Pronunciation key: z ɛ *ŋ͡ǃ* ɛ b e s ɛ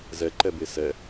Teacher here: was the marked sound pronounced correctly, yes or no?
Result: no